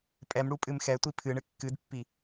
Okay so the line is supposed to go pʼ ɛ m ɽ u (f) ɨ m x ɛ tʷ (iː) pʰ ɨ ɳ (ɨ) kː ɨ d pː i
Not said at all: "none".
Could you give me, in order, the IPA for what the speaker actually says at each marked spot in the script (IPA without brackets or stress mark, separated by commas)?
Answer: pʼ, i, ɨ